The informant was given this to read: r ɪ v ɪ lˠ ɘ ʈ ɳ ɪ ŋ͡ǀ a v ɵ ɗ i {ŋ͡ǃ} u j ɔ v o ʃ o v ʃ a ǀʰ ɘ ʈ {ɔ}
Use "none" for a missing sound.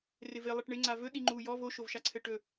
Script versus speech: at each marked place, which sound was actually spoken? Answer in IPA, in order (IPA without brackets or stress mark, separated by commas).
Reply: ŋ͡ǃ, ɵ